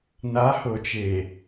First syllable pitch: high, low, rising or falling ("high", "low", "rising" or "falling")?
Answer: rising